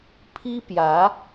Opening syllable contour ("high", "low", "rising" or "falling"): high